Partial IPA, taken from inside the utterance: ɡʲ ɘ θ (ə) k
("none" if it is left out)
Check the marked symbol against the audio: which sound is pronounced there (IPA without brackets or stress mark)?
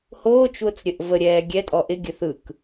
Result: ɯ